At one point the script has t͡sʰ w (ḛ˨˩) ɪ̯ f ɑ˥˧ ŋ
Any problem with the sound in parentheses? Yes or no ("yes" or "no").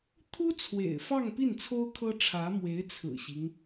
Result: no